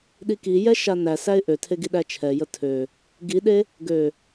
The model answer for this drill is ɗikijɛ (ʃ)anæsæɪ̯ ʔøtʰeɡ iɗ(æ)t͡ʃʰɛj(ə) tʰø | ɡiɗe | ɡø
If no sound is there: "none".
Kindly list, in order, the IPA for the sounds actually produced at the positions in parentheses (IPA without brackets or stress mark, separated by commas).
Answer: ʃ, æ, ə